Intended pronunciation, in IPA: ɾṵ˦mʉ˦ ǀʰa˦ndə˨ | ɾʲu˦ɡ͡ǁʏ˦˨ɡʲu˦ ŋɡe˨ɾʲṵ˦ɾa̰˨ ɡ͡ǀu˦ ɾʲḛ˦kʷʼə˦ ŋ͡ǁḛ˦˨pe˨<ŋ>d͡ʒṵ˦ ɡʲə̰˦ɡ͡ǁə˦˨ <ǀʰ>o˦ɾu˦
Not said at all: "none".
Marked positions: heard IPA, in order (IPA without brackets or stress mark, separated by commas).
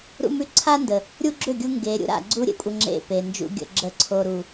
n, ǀʰ